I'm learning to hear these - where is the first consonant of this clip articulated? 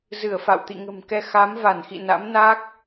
tongue tip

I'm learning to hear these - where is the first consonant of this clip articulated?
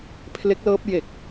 lips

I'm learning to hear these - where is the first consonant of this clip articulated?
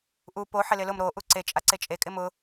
throat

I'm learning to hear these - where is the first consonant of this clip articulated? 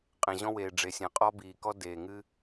uvula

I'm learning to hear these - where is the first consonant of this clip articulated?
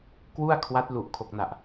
velum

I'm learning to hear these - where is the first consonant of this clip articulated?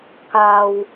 velum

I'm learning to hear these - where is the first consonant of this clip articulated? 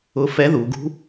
lips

